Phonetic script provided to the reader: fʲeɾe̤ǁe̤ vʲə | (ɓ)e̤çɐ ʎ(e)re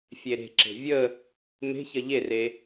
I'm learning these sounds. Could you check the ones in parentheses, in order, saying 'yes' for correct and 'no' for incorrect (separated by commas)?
no, yes